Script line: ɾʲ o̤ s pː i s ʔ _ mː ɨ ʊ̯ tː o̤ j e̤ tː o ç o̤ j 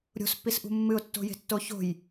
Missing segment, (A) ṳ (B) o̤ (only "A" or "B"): A